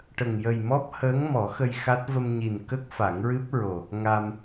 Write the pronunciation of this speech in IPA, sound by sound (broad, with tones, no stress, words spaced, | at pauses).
ʈə˨˩ŋ jə˨˩jmɔ˦˥p̚ həː˧˥ŋmɔ˨˩˦xə˧j xa˦˥t̚ və˧mɲi˨˩nkə˦˥k̚ fa˨˩˦ŋɹɨ˦˥p̚ɹo˨˩ | ŋa˧m